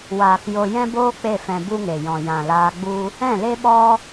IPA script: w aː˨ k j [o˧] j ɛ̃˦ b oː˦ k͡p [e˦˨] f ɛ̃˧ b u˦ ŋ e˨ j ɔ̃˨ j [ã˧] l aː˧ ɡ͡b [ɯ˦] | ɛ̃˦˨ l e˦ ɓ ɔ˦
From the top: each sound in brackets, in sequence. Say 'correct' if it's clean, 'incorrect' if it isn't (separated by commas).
correct, correct, incorrect, incorrect